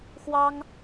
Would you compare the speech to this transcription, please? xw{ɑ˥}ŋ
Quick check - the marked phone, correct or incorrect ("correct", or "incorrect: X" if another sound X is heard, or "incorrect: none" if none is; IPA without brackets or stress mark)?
correct